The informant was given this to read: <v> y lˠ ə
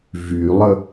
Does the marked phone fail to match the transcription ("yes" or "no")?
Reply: no